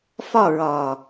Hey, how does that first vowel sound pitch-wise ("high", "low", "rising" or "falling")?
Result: falling